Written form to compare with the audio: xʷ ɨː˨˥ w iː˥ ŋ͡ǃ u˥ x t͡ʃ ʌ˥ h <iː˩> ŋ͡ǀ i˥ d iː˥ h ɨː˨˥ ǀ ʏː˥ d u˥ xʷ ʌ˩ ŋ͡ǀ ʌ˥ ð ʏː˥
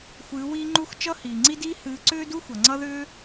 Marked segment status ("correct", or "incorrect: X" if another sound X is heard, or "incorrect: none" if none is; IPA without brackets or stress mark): correct